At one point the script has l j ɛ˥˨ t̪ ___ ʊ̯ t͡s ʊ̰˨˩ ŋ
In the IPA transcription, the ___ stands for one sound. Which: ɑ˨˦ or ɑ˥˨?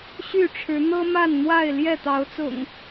ɑ˨˦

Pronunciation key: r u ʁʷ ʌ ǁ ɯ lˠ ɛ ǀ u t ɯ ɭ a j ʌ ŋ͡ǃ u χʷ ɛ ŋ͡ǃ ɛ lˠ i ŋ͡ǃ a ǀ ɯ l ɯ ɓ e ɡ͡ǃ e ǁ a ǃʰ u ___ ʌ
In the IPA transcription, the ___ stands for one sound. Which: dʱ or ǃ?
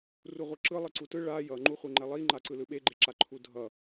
dʱ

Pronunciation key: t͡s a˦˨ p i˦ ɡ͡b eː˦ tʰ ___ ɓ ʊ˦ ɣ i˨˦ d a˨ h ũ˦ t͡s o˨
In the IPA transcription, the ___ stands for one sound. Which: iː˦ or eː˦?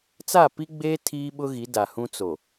iː˦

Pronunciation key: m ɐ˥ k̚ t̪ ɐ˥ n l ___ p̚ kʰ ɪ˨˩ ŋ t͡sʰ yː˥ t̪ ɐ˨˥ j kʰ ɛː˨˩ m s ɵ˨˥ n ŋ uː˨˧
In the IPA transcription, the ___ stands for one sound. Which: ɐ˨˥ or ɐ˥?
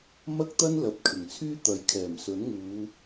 ɐ˨˥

